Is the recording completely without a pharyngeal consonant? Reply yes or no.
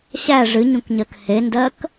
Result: yes